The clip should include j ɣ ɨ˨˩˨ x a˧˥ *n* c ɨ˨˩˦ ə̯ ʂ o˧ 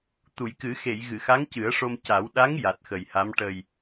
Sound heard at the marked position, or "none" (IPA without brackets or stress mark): ŋ